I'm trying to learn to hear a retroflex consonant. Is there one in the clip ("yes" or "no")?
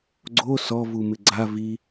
no